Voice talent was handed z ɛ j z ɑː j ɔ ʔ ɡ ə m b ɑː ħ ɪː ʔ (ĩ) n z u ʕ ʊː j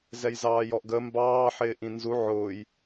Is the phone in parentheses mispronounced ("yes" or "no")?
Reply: no